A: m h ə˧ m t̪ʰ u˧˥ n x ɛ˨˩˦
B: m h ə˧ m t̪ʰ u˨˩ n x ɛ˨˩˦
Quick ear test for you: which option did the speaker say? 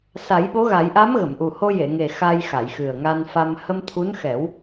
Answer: A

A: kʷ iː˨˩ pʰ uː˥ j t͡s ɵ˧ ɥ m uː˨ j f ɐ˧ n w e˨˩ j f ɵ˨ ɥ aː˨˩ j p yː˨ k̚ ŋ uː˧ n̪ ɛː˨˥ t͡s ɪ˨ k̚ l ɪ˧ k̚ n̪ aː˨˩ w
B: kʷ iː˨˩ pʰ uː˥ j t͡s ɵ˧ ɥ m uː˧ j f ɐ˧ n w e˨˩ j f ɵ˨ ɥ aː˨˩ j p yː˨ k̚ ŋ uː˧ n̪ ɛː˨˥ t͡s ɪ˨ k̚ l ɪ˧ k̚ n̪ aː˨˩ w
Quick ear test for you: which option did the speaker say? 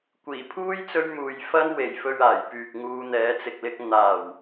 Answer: A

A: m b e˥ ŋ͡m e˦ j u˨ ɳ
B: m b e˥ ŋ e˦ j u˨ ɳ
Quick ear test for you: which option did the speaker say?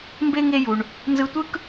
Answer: B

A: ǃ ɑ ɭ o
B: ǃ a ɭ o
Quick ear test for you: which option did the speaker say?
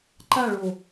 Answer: B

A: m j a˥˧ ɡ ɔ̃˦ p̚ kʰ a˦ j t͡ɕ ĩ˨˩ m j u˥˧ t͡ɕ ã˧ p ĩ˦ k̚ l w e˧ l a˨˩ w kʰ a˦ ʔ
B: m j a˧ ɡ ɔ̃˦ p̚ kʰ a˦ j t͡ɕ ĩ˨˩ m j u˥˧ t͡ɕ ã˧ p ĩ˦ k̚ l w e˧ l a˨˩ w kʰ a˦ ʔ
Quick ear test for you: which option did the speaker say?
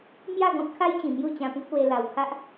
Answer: A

